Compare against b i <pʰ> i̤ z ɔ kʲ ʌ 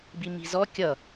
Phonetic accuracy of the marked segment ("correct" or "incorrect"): incorrect